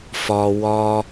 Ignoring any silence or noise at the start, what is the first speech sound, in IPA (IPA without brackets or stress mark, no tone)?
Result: f